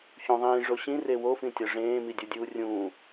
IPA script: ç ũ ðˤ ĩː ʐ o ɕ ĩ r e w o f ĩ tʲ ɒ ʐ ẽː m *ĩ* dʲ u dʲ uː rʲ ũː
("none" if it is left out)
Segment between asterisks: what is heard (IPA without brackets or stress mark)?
i